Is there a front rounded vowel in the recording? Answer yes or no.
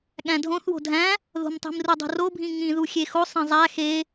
no